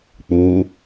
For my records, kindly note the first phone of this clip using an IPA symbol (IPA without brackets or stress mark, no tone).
k͡p